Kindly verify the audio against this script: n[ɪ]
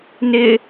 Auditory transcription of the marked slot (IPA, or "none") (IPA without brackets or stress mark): ɪ